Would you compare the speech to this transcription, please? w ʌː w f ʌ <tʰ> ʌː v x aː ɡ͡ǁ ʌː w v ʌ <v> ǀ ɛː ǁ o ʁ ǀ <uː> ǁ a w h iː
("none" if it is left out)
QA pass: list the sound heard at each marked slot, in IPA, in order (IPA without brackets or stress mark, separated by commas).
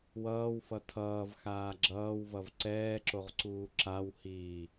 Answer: tʰ, v, uː